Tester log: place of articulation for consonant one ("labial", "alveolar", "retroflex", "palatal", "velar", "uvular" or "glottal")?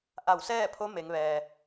glottal